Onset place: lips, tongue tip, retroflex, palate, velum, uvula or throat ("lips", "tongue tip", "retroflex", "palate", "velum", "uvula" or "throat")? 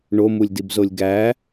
retroflex